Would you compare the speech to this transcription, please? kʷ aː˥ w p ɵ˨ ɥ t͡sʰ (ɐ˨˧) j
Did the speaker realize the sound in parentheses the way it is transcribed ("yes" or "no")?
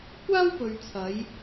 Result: yes